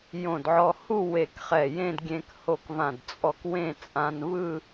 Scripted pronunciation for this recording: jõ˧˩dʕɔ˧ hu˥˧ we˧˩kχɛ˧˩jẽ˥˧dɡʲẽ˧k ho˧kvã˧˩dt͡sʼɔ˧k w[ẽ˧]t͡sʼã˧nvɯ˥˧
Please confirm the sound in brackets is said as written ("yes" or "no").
no